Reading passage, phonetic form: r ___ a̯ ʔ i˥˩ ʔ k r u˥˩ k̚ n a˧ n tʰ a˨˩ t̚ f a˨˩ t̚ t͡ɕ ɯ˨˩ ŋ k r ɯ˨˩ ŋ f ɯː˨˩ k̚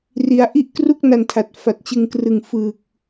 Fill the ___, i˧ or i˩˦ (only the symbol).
i˩˦